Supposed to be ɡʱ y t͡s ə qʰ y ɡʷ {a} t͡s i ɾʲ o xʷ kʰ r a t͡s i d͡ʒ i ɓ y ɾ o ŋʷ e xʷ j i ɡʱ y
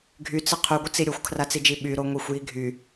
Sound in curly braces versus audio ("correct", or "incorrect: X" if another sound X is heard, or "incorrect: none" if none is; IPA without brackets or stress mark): incorrect: ə